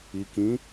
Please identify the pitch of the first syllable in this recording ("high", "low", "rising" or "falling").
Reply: low